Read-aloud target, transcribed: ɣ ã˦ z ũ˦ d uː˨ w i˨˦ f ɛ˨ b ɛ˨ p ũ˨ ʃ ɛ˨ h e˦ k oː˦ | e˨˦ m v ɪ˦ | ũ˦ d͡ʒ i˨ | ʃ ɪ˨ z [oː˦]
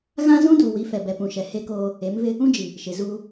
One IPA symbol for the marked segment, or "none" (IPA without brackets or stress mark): uː˦